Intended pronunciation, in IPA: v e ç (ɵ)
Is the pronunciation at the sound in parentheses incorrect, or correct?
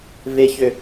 incorrect